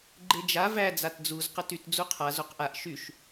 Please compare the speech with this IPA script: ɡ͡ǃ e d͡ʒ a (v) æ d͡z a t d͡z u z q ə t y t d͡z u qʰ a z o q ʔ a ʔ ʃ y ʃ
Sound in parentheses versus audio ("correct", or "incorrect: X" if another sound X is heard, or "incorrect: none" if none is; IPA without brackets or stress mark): correct